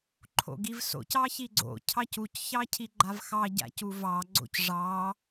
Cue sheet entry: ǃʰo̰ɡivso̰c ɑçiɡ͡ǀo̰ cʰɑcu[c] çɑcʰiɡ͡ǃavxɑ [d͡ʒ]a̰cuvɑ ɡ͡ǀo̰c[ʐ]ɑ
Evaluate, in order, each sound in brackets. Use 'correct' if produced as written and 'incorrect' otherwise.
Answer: correct, incorrect: ɟ, correct

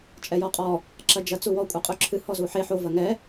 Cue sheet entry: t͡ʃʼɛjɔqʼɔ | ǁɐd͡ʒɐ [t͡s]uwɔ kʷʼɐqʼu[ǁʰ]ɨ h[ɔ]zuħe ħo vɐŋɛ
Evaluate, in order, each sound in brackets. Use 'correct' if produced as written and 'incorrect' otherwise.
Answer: correct, correct, correct

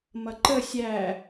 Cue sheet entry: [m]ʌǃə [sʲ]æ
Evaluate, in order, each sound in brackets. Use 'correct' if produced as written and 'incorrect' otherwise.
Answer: correct, correct

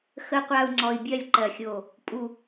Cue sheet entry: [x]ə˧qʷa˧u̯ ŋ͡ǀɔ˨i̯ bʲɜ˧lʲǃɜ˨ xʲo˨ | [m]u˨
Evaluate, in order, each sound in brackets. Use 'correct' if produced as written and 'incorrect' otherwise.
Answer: correct, incorrect: pʼ

